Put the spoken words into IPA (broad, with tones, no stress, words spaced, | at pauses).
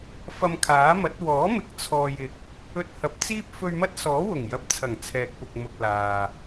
fɐ˧mkʰaː˨˥mɐ˨˥t̚ wɔː˨˥mɪ˨˥k̚ t͡sʰɔː˨jɪ˨k̚ | ɵ˧t̚hɐ˨˥p̚t͡siː˥p̚ fɵ˧ɥmɐ˥t̚ sɔː˨˥wʊ˨˩ŋjɐ˨˥p̚t͡sʰɐ˨˩ŋ t͡sʰɛː˨k̚pʊ˨k̚mʊ˨k̚ laː˨